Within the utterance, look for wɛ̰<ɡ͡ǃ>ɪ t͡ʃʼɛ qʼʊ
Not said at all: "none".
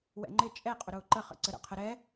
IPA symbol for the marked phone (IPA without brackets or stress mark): ŋ͡ǃ